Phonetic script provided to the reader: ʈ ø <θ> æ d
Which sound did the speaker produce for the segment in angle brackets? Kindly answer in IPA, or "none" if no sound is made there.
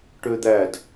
d̪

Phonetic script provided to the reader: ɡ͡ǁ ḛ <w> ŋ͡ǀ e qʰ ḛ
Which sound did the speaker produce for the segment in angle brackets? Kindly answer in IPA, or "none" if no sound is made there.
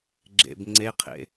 b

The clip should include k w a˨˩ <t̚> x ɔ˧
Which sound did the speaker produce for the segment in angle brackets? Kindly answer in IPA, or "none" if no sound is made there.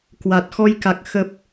t̚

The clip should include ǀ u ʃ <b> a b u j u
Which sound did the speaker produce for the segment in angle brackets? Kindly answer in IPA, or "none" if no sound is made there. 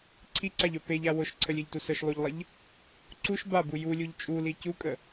b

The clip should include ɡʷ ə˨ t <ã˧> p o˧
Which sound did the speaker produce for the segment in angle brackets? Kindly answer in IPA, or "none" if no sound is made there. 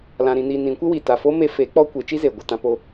ã˧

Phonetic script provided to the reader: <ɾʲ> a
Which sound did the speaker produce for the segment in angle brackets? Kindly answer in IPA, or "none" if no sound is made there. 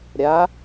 ɾʲ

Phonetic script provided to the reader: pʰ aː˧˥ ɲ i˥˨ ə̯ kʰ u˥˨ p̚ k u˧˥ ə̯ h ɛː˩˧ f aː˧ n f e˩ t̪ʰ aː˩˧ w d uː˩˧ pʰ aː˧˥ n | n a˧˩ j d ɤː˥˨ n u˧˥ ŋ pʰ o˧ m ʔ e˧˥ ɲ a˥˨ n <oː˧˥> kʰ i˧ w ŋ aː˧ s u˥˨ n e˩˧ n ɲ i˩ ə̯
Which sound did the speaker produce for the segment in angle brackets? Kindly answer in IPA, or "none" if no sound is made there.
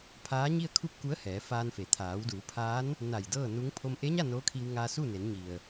oː˧˥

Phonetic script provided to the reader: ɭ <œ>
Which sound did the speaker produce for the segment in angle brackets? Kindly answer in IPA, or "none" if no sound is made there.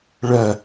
œ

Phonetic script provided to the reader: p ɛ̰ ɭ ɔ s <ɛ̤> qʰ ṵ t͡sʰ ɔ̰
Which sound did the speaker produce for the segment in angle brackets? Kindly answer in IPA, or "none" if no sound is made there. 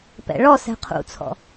ɛ̤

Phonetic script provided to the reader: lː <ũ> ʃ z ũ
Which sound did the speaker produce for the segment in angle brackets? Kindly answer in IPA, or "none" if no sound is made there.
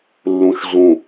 ũ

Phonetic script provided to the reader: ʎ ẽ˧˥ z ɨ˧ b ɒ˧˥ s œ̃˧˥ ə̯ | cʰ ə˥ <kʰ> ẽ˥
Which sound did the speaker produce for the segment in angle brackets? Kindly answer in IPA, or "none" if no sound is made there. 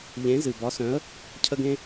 ɡ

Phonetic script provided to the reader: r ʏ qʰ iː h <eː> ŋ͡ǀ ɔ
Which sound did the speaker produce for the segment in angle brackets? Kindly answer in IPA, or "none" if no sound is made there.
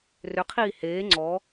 eː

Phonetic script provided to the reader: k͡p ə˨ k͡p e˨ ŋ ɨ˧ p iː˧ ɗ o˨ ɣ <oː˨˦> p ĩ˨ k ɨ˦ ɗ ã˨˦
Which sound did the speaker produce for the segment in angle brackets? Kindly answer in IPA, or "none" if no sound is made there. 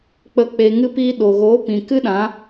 oː˨˦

